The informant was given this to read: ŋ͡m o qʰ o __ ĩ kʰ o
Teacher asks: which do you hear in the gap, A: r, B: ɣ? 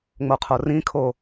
A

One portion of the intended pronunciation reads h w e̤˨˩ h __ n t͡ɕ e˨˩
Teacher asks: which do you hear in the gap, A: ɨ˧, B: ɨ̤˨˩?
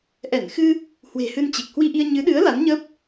A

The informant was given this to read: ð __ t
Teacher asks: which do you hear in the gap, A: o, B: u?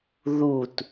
B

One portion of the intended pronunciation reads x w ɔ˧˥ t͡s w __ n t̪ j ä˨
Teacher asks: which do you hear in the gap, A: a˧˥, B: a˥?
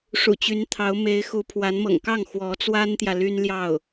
B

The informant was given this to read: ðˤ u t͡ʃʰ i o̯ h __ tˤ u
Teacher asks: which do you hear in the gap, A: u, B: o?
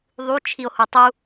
A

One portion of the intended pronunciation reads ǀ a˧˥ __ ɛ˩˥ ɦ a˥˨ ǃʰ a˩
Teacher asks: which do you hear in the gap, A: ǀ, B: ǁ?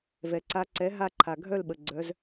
A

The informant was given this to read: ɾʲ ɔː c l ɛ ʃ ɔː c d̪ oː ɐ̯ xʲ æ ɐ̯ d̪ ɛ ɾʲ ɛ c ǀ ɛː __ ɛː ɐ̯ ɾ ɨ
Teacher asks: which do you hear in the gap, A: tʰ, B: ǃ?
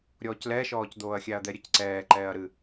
B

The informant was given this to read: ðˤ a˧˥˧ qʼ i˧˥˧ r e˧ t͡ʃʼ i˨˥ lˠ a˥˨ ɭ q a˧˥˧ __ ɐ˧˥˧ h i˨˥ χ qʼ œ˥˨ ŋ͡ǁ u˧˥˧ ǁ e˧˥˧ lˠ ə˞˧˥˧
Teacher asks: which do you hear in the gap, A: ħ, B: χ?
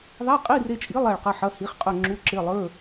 A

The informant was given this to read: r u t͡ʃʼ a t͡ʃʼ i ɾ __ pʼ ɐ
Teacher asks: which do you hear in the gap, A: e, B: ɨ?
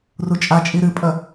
B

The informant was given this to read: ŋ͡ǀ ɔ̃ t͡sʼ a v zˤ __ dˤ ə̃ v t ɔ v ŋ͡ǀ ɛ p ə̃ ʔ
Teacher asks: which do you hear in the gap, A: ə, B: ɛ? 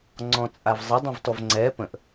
A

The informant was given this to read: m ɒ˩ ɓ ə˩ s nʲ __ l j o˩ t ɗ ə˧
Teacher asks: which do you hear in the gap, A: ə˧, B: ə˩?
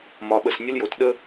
A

